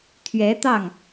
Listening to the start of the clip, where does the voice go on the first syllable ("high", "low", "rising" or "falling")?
rising